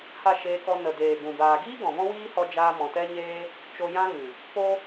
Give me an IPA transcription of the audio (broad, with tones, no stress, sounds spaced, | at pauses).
h a˦˨ ʃ eː˧ k ɔ˧ n ə˨ d eː˨ ɡ ũ˨ b aː˨ ɡ iː˦ ɡ ɔ̃˨ v ɔ̃˦ w iː˦ h ɔ˧ d͡ʒ aː˧ m ɔ̃˨ t ɛ˦ ɲ eː˦ | t͡ʃ o˧ j ã˦ ɣ ɨ˨ | p o˦